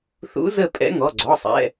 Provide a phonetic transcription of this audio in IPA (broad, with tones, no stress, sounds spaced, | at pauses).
θ ṵ˧˥ z ə˥˧ pʼ ɛ̰˧˥ ŋ ɔ˩˧˩ ɡ͡ǀ ɔ˩˧˩ sˤ ɛ̰˩˧˩